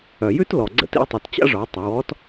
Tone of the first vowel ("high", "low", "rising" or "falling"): low